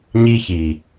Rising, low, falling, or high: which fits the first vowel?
high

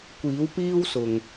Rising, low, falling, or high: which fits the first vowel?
rising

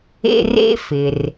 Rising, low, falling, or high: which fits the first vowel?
high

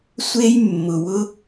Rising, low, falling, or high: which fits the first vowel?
high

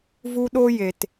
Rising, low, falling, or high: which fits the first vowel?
high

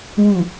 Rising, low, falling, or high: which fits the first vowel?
low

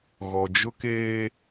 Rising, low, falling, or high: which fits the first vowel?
low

